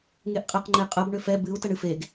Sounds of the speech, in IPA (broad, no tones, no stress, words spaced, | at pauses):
ŋeʔqʼeq ŋ͡ǃeqʼəb ɳʏfɛ bɨu̯ təɳɨfeɡ